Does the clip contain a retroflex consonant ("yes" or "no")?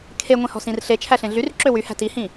no